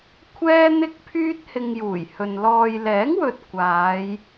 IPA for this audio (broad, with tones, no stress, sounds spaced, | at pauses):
kʷʰ ɛː˥ n̪ ɪ˥ k̚ pʰ yː˥ t̚ h ɪ˧ ŋ j uː˨˩ j h ɵ˨ n l ɔː˨ j l ɛː˨˥ ŋ w ɵ˨ t̚ kʷ aː˨˧ j